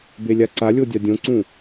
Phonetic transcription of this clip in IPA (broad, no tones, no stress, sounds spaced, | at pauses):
b e lʲ a ǀ a lʲ o dʲ a dʲ õ ǀ ũ